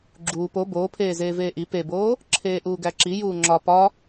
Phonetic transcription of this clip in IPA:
ɡ͡ǁ uː p o b oː pʰ eː z eː v eː ʔ i p e b oː | ǁʰ eː ʔ uː ɡ æ ǁ i j uː ŋ͡ǁ ɒ p ɒ

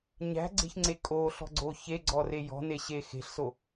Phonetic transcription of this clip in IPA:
ɲ æ̤ ɡ͡ǀ e̤ ç ŋ͡ǀ e kʼ o ɬ ɔ̤ ɡ͡ǀ o ç e ɡ͡ǀ ɔ r e j ɔ̤ n e ɕ e x e̤ ɬ s o

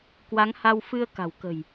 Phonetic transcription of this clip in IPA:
k w a˨˦ ŋ h a˧ w f ɨ˧ ə̯ k a̤˨˩ w k ə̤˨˩ j

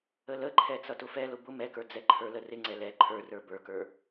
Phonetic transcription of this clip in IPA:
ə l ə ǃʰ ɛ t͡s ʌ t ʊ f ɛ l ʊ b ʊ m ɛ k ə˞ d͡z ɛ ǃʰ ə˞ l ə r ɪ ŋ͡ǀ ɛ l ɛ ǃʰ ə˞ r ə˞ b ə˞ k ə˞

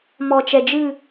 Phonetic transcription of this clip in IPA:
m ɔ˨ t͡ʃ ɛ˨ d͡ʒ ɨ˦˨

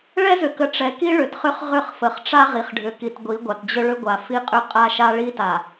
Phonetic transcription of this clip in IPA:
ɭ ɛ˦ z ʏ˨ k ə˨ ʈ͡ʂ ɛ˨ k i˦ ɭ ʏ˨ t χ ʏ˦ χ ʁ ʏ˦˨ χ f ə˨ χ ʈ͡ʂ a˦ ʁ i˨ χ ɖʱ ʏ˨ k i˨ t ɡʷ i˨˦ ɡʷ a˨ t d͡ʑ ʏ˦ ɭ ʏ˦ ɡʷ a˨ f i˦ qʼ ʏ˦ qʼ a˦ ʃ a˦ ɭ i˦ t a˨

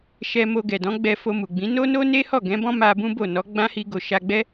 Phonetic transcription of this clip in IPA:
ʃ ɛ˧ m o˧ ɡ ɛ˨ d ɔ̃˨˦ ɡ͡b ɛ˧ f o˧ m u˨ ɡ͡b ĩ˨˦ n o˦ n o˦ n e˦ h ɔ˦˨ ɡ ɛ̃˨˦ b ɔ̃˦ m a˧ b ũ˦ b o˦˨ n ɔ˨˦ ɡ͡b ã˦ h i˧ ɡ o˨ ʃ a˧ ɡ͡b ɛ˦

